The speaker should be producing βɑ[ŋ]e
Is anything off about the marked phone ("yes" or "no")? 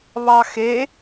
yes